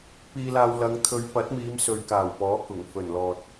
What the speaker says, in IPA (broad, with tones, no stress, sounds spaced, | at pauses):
p iː˧ l aː˧ w l ɐ˨˧ ŋ t̪ʰ ɵ˨˧ ɥ p ɐ˨˥ t̚ m iː˨˧ m s ɵ˨˧ ɥ k aː˨˩ w p ɔː˨˥ k ʊ˨˩ ŋ f ɵ˨˩ n l ɔː˨ t̚